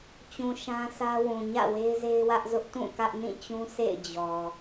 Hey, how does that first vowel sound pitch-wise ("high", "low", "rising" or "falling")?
low